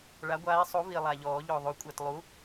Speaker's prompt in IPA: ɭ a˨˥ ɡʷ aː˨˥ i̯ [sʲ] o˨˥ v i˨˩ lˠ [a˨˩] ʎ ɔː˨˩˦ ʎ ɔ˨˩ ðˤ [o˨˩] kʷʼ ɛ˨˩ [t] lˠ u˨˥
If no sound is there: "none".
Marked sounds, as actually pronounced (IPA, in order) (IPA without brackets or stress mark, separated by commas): sˤ, a˨˩, o˨˩˦, t